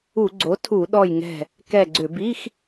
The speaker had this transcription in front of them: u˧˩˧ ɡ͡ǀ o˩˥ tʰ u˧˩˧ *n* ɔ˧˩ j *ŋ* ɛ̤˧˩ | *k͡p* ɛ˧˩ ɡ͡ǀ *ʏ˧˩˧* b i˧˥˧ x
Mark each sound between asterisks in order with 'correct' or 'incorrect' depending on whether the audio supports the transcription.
incorrect, correct, incorrect, correct

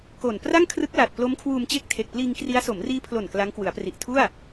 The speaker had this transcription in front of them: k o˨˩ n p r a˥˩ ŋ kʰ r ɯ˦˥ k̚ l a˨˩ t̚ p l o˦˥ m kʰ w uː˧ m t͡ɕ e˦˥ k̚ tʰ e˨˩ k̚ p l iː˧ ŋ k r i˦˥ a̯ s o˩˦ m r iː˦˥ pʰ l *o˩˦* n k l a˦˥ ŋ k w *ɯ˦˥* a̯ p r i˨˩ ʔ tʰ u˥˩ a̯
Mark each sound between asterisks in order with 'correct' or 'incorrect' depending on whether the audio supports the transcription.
incorrect, incorrect

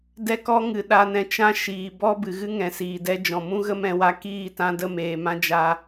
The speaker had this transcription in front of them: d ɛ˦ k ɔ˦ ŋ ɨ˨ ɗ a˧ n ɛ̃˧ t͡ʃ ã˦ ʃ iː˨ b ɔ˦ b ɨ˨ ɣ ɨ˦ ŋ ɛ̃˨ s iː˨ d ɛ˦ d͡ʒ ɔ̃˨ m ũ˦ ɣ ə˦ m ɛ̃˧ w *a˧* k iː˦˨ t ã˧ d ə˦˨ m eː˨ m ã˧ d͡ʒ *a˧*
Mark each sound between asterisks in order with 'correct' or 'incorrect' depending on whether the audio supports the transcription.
correct, correct

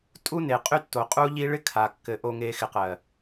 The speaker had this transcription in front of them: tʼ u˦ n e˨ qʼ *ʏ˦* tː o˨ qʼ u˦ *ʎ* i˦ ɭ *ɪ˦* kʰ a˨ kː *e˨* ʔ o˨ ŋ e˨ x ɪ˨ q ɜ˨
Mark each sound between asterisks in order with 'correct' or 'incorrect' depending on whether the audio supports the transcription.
incorrect, correct, correct, incorrect

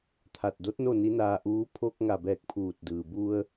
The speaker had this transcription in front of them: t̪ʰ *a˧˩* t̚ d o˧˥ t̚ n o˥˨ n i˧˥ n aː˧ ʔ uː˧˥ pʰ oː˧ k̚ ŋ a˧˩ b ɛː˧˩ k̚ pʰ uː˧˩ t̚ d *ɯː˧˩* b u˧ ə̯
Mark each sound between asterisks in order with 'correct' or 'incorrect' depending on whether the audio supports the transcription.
correct, incorrect

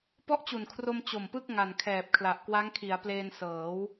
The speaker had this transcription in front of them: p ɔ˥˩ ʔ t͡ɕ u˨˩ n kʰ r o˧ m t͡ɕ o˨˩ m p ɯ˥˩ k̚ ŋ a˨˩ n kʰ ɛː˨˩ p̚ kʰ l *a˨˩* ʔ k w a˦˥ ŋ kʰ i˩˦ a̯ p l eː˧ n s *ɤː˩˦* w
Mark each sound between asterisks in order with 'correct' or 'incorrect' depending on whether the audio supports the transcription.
correct, correct

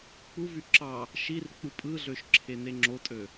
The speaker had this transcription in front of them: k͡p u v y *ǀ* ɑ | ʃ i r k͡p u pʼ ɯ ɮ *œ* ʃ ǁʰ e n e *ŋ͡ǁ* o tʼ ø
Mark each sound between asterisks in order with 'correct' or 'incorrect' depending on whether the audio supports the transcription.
incorrect, incorrect, correct

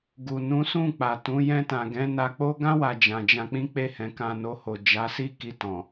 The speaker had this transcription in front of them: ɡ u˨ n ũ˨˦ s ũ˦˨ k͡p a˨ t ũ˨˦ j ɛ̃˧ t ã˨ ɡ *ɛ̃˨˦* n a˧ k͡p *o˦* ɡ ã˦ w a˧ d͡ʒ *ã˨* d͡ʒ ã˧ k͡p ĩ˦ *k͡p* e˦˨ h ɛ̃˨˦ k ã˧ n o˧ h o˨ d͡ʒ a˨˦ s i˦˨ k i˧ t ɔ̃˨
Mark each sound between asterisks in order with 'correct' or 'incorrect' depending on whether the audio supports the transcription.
correct, correct, correct, correct

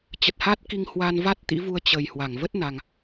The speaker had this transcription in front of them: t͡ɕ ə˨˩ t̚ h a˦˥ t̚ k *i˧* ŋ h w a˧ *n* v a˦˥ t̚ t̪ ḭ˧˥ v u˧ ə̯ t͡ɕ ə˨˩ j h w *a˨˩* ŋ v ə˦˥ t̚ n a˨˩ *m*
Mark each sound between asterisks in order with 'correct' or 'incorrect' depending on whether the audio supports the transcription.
correct, correct, incorrect, incorrect

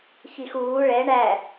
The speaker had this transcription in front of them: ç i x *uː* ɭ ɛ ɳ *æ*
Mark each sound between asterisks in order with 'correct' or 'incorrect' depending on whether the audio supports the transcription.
correct, correct

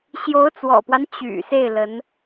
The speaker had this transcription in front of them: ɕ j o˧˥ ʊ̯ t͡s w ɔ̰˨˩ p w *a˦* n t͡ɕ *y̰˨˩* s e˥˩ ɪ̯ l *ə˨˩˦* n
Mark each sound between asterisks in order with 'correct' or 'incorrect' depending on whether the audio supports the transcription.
correct, correct, incorrect

